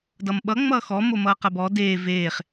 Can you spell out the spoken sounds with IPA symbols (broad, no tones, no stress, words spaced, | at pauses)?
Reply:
dʌmɓʌ ŋ͡mʌːxɔ momʌːqɐbɔ deː veːχ